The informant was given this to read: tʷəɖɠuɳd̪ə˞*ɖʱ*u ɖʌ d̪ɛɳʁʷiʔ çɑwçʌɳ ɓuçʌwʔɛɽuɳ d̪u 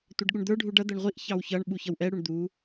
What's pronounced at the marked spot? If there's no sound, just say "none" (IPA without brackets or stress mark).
ɖʱ